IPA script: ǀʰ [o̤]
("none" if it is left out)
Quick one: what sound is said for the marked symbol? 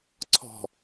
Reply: ɔ̤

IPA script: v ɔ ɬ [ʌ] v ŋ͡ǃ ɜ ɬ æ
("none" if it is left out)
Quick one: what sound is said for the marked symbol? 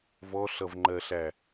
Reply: ʌ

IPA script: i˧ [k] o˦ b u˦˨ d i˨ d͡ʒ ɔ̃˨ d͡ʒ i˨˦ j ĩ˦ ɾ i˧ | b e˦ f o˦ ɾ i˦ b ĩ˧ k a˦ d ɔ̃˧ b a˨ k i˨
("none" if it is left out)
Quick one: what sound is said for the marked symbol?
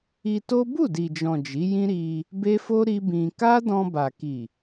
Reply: t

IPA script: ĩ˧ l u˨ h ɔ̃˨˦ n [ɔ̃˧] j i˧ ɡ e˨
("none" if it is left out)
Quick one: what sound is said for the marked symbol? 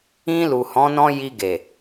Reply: ɔ̃˧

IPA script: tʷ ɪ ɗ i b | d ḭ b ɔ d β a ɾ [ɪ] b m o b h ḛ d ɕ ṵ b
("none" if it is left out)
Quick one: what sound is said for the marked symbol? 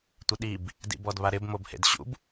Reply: ɪ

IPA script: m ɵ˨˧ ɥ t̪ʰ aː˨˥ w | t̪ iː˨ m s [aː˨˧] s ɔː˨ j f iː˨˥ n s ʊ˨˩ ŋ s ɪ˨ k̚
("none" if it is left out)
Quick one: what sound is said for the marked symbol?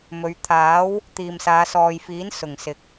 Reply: aː˨˧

